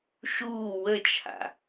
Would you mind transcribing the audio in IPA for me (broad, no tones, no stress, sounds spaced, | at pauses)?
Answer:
ʃ uː w ə t͡ʃʰ a̰